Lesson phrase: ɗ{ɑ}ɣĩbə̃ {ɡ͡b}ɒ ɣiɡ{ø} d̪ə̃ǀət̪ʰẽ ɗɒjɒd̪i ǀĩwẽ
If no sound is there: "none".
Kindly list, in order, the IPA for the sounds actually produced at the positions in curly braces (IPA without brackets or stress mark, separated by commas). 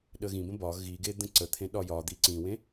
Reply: ə, b, e